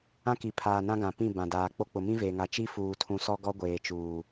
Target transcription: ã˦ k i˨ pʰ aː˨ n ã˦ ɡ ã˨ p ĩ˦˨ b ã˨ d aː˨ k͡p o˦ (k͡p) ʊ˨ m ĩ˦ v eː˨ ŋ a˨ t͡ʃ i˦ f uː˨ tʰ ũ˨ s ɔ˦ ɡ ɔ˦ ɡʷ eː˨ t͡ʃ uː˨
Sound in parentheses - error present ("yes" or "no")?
no